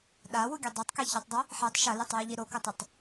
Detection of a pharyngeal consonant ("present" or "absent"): present